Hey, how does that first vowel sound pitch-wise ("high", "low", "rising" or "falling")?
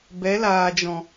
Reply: rising